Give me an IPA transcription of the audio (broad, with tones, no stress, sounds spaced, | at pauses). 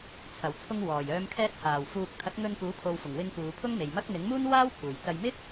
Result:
t͡sʰ ɐ˨˩ w t͡sʰ ʊ˧ ŋ w ɔː˨˩ j œː˨˧ m kʰ ɛː˧ t̚ h aː˨˩ w f uː˨ k̚ t̪ʰ ɐ˨˥ t̚ ŋ ɵ˧ n p uː˨˥ kʰ o˨ w f ʊ˨˩ ŋ w ɪ˧ ŋ p uː˨˧ pʰ ʊ˥ ŋ m e˨ j m ɐ˥ k̚ n̪ ɪ˨˥ ŋ m uː˥ n w aː˥ w kʰ uː˨˩ j t͡s ɐ˧ j m ɪ˥ k̚